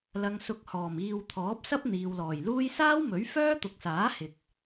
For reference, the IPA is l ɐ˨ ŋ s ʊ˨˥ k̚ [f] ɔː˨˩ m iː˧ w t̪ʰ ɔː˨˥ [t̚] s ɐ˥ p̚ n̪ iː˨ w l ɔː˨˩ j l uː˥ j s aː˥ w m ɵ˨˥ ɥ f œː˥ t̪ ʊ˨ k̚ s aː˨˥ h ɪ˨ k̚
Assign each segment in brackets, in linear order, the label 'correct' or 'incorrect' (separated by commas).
incorrect, incorrect